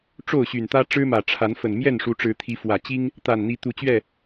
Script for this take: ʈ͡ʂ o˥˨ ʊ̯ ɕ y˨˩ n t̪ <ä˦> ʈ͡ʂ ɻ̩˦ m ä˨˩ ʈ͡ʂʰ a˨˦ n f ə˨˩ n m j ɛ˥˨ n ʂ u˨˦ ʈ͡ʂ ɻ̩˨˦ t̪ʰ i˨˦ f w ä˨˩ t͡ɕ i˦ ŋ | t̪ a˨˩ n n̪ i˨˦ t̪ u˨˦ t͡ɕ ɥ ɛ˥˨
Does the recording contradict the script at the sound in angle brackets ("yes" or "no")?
no